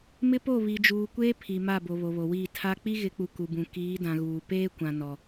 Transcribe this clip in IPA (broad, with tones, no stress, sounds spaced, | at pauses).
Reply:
m ɪ˦ p o˦˨ β i˨ d͡ʒ uː˨ kʷ eː˦ pʰ i˨ m a˦˨ b o˨ β o˨ β o˨ w iː˦˨ tʰ a˦ k͡p i˦ ɣ ɪ˨˦ k͡p u˨ k u˨ b ũ˨ k iː˨˦ d ã˨ ɣ uː˨ p eː˦ kʷ ã˨ n ɔ˨